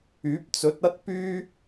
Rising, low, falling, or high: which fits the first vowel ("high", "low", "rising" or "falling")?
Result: rising